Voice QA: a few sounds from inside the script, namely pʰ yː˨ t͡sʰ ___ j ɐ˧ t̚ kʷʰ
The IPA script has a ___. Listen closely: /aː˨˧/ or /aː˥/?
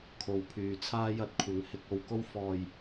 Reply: aː˥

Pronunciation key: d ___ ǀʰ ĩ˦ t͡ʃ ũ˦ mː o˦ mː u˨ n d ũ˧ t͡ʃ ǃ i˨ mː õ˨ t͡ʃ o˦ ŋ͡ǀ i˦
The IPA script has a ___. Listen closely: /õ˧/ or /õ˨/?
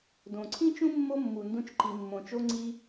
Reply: õ˨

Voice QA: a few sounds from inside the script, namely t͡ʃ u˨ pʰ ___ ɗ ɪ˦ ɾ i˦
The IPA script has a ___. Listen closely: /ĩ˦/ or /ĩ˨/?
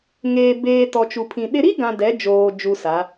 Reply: ĩ˨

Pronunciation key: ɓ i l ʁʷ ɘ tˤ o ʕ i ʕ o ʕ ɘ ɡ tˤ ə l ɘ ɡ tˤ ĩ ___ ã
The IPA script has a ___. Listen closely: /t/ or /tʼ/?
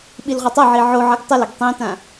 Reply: t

